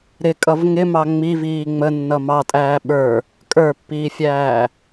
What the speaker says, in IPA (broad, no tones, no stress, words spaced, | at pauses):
ɾɪkʼʌv ŋɪmɑ ŋ͡miviː ŋ͡mənːʌ mɑtʼæː ɓə˞ | kʼə˞pːiːfʲæː